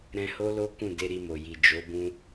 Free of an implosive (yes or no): yes